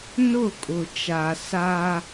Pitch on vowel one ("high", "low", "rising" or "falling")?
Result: falling